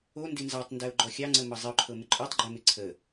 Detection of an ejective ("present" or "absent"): present